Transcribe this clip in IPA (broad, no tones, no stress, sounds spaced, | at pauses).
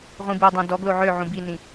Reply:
ʁʷ ĩ b u dˤ œ̃ d ɔ ɡ l o ʕ ø ʕ ũ b i n ĩ